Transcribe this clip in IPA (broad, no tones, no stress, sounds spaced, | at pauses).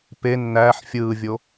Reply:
p e nː æː ħ fʲ ɯː vʲ o